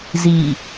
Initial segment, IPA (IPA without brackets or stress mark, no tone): z